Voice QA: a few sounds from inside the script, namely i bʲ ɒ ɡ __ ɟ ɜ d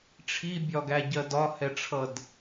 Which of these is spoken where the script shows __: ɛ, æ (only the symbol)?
æ